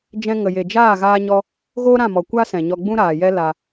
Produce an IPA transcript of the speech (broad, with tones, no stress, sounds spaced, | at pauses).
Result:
d͡ʒ ɛ̃˧ ŋ ə˨ j e˨ d͡ʒ aː˦˨ ɣ aː˦ ɲ ɔ˦ | ɣ oː˦ ɾ ã˦˨ m ɔ˨ kʷ a˦ s ɛ̃˨ ɲ ɔ˧ ɡ͡b ũ˦ ɾ aː˨ j ɛ˦ l a˧